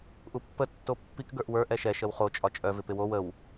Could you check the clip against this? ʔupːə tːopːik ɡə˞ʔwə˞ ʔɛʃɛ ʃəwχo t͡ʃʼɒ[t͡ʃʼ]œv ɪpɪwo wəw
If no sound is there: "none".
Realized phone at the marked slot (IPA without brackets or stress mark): t͡ʃʼ